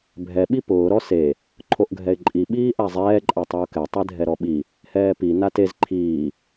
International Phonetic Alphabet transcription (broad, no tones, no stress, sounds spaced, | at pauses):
bʱ ɛ ɓ i p ʊː ɾ ɔ s e | ǃʰ o ʔ ɡʱ ɛ ɪ̯ ǃʼ i ɓ iː ʔ a zˤ ɛː ǃʼ a tˤ e ʊ̯ k ɛ tˤ e dʱ ɛ ɾ ɔ ɓ i | h ɛː p i n a t e z ǃʰ iː